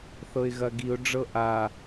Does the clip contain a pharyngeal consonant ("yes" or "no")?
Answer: no